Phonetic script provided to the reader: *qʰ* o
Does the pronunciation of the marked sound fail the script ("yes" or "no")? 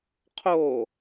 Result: no